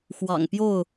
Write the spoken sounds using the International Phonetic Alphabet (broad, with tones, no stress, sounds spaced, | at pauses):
x w ɑ̰˨˩ ŋ p j o˥˨ ʊ̯